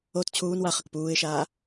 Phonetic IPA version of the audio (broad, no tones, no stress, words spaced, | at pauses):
ot t͡ɕʰuːn waχək puːɪ̯ʃaː